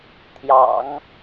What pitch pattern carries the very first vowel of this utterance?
low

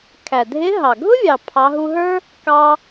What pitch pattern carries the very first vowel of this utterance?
low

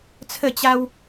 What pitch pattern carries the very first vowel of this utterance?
falling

